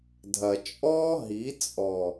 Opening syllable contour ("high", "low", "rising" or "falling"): low